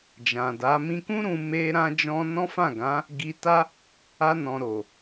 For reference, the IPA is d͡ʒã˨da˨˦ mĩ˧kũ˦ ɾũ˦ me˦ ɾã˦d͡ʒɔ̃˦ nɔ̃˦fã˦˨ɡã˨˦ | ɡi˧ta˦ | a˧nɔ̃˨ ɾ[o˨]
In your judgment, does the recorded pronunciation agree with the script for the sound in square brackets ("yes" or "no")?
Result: yes